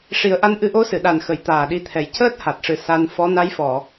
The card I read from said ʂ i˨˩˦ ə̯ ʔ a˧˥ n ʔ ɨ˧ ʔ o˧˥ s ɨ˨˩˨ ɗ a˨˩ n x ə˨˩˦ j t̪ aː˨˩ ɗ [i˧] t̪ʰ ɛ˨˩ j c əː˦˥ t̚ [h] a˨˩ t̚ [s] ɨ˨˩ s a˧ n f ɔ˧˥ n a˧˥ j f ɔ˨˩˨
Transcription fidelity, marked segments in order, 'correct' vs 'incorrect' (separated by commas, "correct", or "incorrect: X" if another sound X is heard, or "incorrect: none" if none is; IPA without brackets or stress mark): correct, correct, incorrect: ʂ